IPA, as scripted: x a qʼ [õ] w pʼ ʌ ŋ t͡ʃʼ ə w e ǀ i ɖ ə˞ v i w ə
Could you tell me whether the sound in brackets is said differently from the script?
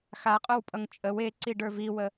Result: yes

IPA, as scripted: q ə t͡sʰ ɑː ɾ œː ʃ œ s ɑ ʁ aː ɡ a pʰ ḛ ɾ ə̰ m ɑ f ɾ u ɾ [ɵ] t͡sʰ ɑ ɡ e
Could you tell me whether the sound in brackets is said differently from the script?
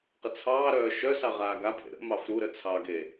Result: yes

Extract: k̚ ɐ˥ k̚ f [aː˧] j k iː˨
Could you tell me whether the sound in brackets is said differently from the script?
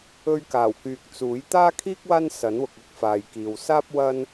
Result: yes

